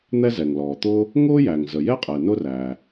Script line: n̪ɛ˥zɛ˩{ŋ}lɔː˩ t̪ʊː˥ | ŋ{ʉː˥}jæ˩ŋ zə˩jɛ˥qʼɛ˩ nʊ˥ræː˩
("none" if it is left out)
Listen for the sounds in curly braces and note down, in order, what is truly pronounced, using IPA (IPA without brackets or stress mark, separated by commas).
ŋ, ʊː˥